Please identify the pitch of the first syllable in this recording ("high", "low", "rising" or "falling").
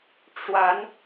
rising